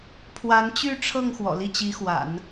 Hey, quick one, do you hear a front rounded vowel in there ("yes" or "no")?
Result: yes